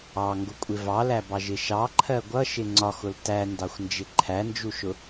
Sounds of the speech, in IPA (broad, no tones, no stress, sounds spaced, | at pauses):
ɑ ŋ ɡ ʊ kʷʼ ɪ v ɑ l æ b ɑ ʒ ɪ ʃ ɑ ǃʰ ɜ ɡʷ ʌ ʃ ɪ ŋ͡ǀ ɒ x ʊ l t æ n d ɑ xʷ n d͡ʒ ɪ ǃʰ æ n d͡ʒ u ʃ ʊ